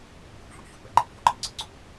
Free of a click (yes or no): no